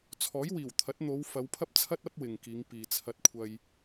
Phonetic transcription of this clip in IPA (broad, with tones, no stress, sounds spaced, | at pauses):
t͡sʰ ɔː˨˥ j w iː˨˩ w t̪ʰ ɐ˨˥ t̚ n̪ o˨˧ w f ɐ˨˧ w pʰ ɐ˥ p̚ t͡sʰ ɐ˥ t̚ ɐ˥ p̚ w ɪ˨ ŋ k iː˨˧ ŋ p iː˨ t͡sʰ ɐ˧ t̚ kʷʰ ɐ˧ j